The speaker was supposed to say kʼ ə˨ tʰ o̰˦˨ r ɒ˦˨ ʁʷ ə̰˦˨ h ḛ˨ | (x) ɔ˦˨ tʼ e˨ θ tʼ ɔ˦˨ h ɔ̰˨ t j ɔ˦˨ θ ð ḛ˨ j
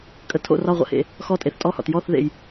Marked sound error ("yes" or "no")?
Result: no